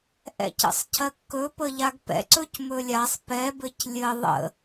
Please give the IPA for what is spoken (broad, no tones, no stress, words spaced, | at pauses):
ʔɛ̰cə̰sˤcʰɜkːɵ pəʎaɡpɛ̰ ǀɵcmɵlʲasˤ pɛbɘc lʲɘ ðˤə̰